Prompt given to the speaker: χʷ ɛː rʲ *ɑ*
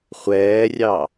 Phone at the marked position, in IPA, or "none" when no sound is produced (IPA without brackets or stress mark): ɑ